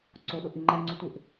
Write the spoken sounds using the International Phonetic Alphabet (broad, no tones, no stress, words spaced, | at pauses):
ǀoɗoʔi ŋ͡ǃɛŋ͡ǀu tʷɪʔ